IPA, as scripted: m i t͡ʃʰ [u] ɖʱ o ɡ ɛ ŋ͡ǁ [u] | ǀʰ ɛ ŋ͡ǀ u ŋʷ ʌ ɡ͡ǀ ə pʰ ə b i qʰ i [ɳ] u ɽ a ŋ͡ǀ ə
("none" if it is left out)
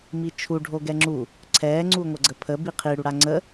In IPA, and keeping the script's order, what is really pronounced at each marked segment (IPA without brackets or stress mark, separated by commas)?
u, u, ɽ